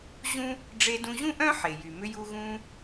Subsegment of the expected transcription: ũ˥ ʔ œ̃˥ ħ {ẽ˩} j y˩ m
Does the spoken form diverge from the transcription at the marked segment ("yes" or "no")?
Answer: yes